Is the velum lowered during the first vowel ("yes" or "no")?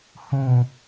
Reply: yes